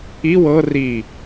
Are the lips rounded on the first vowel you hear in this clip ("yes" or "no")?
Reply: no